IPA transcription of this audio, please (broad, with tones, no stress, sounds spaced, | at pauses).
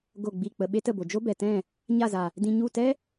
ɡ o˦˨ ɡ͡b i˦˨ k͡p ə˧ ɓ e˦ t ə˦˨ b o˨ d͡ʒ o˦ b ɛ˨ t ɛ̃˦˨ | ɲ a˦˨ z a˨ | d ĩ˧ ɲ u˦˨ t ɛ˦